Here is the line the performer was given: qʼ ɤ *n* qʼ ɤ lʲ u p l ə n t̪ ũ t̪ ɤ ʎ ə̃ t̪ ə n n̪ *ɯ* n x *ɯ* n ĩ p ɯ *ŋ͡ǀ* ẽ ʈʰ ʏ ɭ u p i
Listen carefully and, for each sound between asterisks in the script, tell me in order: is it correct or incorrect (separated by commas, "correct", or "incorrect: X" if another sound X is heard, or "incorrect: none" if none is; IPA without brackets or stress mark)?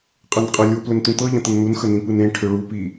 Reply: correct, incorrect: u, incorrect: ə, incorrect: n